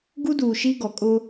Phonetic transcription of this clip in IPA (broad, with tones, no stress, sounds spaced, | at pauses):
ɡ u˦ d uː˨ ʃ i˦ ɡ ɔ˨ kʼ ʊ˦